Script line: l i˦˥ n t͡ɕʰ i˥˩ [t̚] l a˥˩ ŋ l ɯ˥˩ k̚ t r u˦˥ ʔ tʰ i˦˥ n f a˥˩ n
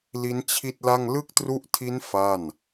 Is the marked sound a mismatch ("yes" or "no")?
no